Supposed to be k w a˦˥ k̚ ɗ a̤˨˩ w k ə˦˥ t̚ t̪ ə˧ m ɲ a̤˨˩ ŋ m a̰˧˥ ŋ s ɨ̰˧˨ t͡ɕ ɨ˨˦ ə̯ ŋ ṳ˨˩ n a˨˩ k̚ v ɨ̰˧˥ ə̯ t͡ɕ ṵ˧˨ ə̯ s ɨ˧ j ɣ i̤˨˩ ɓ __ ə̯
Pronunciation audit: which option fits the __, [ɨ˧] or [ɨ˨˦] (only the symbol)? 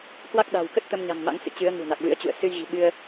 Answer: ɨ˧